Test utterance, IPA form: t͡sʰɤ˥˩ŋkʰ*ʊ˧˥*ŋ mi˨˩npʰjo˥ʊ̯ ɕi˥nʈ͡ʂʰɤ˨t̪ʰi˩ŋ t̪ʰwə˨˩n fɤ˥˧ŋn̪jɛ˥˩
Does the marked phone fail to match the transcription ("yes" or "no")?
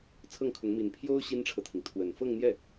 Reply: no